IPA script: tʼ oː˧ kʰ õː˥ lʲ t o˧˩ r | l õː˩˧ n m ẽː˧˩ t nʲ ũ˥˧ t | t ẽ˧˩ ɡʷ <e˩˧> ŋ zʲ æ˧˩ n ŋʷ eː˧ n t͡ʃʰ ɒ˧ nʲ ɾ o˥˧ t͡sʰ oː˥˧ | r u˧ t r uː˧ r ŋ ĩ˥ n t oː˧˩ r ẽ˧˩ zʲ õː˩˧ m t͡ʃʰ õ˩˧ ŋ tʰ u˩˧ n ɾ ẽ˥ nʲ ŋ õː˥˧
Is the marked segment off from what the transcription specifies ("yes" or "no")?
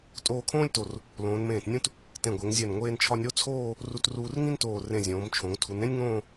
no